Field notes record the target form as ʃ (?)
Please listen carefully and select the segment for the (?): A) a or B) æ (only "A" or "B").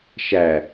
B